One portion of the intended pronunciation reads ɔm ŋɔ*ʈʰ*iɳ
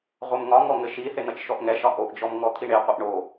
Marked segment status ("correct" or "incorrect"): incorrect